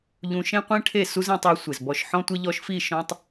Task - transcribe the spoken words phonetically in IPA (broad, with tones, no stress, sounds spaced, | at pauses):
ʎ ũ˧ ʃ ẽ˦ qʷ ẽ˦ ʈʰ e˦˨ s u˦ z ĩ˧ tˤ e˧ sʷ e˨ z b ɔ˨ ʃ ħ ɔ̃˧ tʷ ɪ˧ ʎ ɔ˧ ʃ f i˦˨ ʃ ɔ̃˧ tˤ